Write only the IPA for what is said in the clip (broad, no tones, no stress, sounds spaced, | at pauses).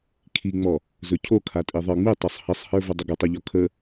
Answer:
kʰ i ŋ͡m ɔ | z ɵ cʰ o kʰ a tʼ i ðˤ ə˞ ŋ͡m i tˤ o sˤ h ɘ sˤ h ə˞ v ə dˤ ə ɡ ə tˤ ɵ ʎ ɔ kʰ ə